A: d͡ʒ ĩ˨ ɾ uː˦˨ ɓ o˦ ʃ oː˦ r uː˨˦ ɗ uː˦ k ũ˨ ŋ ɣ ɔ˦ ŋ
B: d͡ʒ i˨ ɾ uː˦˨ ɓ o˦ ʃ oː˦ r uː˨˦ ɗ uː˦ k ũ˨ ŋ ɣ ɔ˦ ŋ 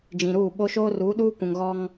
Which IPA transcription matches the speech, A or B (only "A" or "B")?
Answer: A